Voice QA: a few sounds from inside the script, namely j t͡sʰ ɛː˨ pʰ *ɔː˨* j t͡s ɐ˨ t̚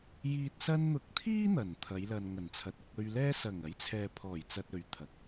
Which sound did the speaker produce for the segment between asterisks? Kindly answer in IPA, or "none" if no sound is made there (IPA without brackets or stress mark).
ɔː˨˩